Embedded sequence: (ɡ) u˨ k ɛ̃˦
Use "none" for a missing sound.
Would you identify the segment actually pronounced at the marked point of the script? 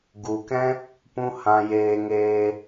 ɡ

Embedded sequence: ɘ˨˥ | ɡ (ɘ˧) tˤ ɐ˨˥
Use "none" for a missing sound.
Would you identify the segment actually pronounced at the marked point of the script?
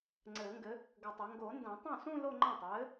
ɘ˧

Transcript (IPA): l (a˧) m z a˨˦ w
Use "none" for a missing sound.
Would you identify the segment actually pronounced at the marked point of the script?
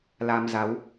a˧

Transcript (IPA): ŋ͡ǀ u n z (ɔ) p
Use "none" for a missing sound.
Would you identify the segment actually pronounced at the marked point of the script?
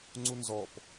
ɔ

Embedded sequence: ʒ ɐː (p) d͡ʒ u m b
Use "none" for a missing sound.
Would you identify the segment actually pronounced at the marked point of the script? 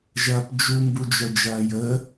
p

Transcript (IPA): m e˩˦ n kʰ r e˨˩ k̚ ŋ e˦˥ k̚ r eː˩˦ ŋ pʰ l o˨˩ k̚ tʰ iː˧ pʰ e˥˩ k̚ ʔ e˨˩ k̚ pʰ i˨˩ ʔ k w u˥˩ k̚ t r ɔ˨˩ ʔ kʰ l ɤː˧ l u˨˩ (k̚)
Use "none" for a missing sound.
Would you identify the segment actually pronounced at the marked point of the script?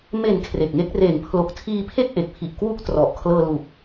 k̚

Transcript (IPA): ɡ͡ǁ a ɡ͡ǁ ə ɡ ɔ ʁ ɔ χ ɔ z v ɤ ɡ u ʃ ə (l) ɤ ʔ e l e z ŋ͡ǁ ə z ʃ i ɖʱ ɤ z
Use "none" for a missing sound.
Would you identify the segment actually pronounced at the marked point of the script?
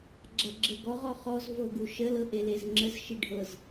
l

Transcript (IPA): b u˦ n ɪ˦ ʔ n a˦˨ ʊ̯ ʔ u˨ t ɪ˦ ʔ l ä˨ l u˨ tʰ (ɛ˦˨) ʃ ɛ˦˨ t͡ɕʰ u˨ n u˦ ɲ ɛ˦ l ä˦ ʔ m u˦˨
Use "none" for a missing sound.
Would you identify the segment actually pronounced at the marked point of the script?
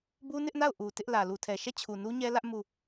ɛ˨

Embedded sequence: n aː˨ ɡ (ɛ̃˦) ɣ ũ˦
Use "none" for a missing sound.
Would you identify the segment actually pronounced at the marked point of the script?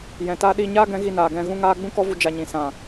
ɛ̃˧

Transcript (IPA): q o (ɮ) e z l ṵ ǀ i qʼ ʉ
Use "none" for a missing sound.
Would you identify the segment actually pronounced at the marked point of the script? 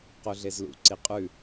ɮ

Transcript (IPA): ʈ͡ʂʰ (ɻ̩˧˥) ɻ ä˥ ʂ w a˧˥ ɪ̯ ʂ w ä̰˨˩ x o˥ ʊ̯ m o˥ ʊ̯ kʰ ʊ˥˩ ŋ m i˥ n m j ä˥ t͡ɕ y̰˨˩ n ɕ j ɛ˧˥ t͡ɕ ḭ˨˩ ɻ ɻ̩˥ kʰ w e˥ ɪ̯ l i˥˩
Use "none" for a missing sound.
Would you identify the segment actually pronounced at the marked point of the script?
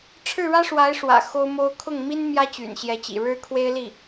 ɻ̩˥˩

